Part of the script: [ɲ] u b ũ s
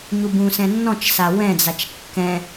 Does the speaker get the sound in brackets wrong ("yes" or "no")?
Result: no